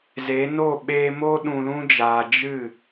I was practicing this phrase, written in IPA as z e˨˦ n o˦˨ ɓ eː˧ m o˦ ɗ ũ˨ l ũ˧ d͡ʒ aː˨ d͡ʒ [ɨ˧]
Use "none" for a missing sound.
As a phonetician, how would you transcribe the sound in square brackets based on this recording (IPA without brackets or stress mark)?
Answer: ɨ˦˨